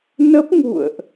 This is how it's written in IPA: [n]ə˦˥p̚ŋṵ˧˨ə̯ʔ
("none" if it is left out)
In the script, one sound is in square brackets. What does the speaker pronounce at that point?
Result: n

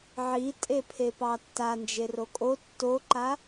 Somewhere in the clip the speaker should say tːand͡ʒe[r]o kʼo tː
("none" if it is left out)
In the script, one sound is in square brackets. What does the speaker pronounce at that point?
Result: r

